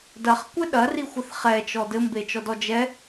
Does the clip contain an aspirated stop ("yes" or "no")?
no